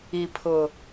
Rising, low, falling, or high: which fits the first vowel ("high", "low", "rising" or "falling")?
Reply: low